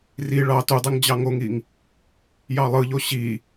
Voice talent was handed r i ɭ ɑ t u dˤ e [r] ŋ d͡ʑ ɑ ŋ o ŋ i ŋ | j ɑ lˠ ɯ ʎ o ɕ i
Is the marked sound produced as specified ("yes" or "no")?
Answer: no